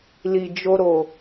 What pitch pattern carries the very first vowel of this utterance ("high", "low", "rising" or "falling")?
low